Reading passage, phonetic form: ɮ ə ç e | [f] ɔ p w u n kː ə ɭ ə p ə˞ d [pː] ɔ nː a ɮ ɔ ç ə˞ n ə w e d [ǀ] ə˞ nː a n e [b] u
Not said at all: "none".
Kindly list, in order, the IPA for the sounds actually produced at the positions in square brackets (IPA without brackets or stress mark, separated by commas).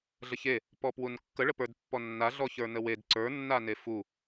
p, pː, ǀ, f